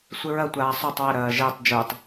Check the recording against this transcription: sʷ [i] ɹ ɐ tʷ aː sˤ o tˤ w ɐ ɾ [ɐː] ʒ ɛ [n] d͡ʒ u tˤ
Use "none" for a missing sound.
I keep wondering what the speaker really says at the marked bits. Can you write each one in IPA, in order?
ɪ, ɐː, tˤ

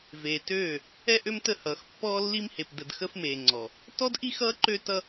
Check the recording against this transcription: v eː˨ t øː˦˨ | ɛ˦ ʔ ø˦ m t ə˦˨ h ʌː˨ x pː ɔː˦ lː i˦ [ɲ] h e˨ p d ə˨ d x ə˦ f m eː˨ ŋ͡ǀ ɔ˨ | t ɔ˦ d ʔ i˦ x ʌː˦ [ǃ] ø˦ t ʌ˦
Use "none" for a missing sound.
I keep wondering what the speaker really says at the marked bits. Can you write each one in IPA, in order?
m, ǃ

